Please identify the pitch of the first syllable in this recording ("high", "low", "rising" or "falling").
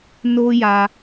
high